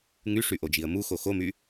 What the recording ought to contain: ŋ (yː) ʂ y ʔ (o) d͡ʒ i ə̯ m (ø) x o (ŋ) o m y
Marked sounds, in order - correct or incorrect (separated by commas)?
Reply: incorrect, correct, incorrect, incorrect